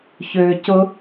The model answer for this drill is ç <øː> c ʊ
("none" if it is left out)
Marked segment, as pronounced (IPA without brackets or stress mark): øː